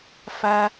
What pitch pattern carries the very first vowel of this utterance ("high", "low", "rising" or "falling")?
low